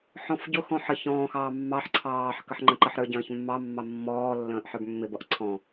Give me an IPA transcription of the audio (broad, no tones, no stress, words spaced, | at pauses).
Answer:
ħɔ̃fɟʊxɔ̃ ħə çɔ̃ːxɑː mːɑħ ǀʰɑːħ kəħŋ͡ǃə̃ǃəħɾə˞ ɟə̃ːçmːɑmːɑ mːɔːlːə̃ːʔ ħə˞bmːɪbʌʔ ǀʰɔ̃